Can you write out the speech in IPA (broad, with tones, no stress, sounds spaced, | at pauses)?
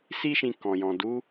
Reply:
s i˦ ʃ ĩ˧ k ɔ̃˨ j ɔ̃˨ d u˨˦